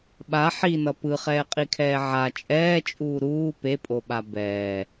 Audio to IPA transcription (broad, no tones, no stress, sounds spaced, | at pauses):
ɓ a ħ i n ʌ p ɯ χ ɛː qʼ i kʰ ɛː ʕ a t͡ʃʼ ɛː t͡ʃʼ uː ɾ uː p e pʼ o ɓ a b ɛː